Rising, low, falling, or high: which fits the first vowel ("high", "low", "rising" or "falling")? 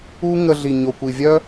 high